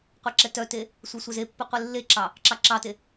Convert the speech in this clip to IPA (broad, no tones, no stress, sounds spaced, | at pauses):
qʷ e ǁ ɛ t œ t e | sʷ œ sʷ ɛ z e pː i qʷ e lː e ǁ ɑ | ǁ ɑ ǁ ɑ t e